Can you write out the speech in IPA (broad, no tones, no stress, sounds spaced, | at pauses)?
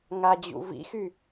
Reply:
ŋ a d͡ʑ ṵ v ḭ x y